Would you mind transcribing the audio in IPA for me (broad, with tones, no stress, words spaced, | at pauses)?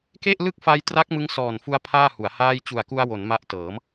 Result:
ke˥˩ʔlɯ˥˩k̚fa˧jtra˦˥k̚ mɯ˦˥ŋsɔː˨˩nfu˧a̯ pʰaː˥˩hu˩˦a̯ haː˥˩j t͡ɕu˨˩a̯ku˧a̯ wo˩˦n ma˦˥ʔtɤː˩˦m